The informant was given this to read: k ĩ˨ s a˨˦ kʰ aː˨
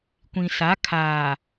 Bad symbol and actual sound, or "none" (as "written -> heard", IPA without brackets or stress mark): k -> kʷ